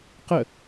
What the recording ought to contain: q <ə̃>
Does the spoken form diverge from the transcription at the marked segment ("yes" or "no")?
yes